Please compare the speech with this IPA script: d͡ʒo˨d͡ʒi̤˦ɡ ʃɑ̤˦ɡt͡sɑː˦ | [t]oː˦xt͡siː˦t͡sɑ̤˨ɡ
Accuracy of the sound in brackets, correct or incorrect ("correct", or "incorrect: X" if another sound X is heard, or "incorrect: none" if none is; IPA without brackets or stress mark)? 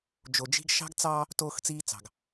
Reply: correct